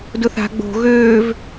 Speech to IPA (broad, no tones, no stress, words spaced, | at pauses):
dʊθa̤ ɡ͡bo̤ ɣøːv